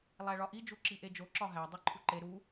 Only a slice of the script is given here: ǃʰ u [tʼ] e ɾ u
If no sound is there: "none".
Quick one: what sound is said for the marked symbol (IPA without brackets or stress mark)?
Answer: ǃ